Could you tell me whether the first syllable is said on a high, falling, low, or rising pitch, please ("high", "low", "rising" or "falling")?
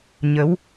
rising